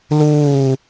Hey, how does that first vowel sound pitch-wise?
falling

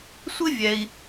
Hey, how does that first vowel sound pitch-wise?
high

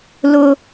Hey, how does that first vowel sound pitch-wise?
high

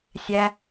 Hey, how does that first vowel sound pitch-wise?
high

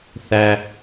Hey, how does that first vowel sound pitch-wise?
low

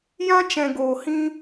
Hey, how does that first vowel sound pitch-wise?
high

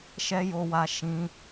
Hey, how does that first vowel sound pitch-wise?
high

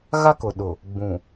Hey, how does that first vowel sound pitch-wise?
high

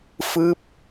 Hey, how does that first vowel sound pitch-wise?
falling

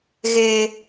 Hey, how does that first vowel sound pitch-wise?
low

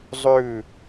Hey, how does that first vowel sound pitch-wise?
falling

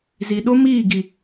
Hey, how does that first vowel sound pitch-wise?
low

